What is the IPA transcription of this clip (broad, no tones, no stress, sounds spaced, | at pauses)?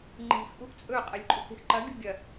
ŋ͡ǃ i̤ x ʔ u x t͡sʼ ɵ qʼ ɐ lʲ ǃʼ u k e̤ x ǃ ɐ ɡʲ ṳ ɡʲ ɐ